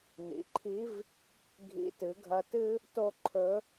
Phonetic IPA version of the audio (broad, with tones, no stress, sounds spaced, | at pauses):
n ḭ˩˧ ǃʰ i˧˥ v | ɡʱ ḭ˧˥ t ɨ˩˧ ɡʱ ɐ˧ t ɨ˥ | t o˥ ǃʰ ɵ˧˥